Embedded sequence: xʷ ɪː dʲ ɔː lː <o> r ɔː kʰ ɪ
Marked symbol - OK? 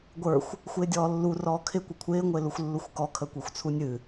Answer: no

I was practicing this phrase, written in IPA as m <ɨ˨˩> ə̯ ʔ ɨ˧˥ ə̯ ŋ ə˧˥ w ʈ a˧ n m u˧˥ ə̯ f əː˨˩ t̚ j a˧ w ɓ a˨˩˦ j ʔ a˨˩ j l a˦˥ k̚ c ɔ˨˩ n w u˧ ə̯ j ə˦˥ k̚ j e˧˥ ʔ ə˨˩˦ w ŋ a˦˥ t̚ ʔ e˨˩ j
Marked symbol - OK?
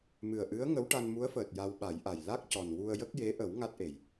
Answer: yes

